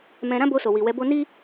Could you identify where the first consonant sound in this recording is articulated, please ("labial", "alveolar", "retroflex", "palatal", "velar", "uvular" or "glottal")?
labial